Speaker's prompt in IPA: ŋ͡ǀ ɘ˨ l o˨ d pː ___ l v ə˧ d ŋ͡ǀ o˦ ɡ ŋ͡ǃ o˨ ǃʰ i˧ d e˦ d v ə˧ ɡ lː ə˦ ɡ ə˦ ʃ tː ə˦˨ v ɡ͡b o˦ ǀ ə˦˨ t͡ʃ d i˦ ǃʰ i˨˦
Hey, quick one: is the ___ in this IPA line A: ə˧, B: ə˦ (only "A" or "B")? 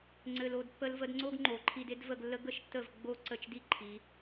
A